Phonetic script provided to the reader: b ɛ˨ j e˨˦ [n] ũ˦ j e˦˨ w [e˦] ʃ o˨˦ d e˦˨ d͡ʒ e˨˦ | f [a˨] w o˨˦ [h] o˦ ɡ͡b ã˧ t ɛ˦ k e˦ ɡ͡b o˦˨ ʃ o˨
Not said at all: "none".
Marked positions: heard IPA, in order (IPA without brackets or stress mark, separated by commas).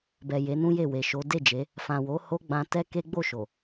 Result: n, e˨, ã˨, h